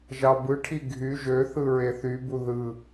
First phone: ʒ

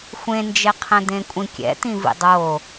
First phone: xʷ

